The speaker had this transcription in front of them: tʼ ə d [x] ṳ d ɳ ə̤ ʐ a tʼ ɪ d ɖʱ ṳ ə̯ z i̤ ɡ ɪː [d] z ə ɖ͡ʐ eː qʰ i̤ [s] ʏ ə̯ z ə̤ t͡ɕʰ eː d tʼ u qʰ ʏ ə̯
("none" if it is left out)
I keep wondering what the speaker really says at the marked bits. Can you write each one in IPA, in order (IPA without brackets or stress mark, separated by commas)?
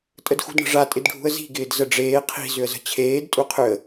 x, d, z